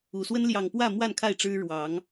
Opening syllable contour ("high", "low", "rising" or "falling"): low